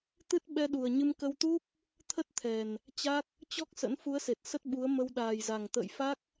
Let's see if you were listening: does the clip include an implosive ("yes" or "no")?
yes